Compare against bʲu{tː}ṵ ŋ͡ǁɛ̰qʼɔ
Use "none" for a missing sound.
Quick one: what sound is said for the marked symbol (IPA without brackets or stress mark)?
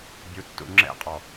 tː